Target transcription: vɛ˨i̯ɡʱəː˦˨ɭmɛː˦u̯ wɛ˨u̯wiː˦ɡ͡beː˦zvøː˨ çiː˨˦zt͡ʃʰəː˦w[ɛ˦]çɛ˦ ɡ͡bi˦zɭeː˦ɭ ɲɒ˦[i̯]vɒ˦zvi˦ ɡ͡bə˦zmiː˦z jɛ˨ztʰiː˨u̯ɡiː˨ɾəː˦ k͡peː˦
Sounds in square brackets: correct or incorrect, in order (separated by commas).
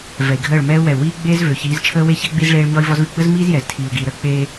incorrect, correct